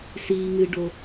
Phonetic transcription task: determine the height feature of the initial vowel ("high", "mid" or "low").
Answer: high